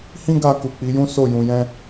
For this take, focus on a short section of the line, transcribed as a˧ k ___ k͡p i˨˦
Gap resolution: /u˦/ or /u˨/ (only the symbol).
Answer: u˨